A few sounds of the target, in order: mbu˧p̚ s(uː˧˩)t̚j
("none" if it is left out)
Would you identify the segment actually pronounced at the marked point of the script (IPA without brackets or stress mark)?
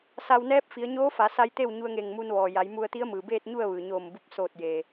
oː˧˩